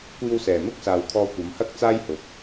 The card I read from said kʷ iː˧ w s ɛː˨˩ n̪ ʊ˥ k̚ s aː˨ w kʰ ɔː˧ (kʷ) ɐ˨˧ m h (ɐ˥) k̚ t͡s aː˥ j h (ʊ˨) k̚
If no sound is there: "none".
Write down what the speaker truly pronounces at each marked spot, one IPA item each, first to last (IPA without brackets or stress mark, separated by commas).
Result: kʷ, ɐ˥, ʊ˨